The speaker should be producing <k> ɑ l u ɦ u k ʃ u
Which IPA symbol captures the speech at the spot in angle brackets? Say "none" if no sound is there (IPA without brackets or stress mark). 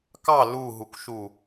k